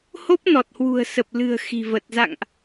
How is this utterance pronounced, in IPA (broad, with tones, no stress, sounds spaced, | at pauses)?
h o˦˥ p̚ n ɔ˨˩ t̚ h w ṳ˨˩ ə̯ s ə˨˩ p̚ l ɨ̤˨˩ ə̯ x i̤˨˩ v ə˨˩ t̚ z a̰˧˨ ŋ ʔ